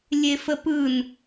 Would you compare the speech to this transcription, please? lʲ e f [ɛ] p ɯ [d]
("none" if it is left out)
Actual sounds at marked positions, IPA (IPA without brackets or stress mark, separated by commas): ə, n